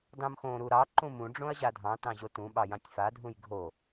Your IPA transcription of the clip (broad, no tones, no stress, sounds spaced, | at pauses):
d ɑ̃ m x õ ɾ u ɾ ɑ ǃ ũ m ũ ɖ͡ʐ õ ɐ̯ ʑ a dʱ ɑ̃ t ɑ̃ ʑ o t ũ ɓ ɑ j ɑ̃ tʲ f a dʱ ũ j ɡʱ o